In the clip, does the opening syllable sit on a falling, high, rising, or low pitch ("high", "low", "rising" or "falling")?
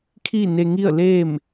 falling